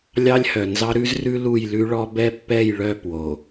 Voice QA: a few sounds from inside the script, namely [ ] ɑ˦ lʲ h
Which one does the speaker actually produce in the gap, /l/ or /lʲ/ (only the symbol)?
lʲ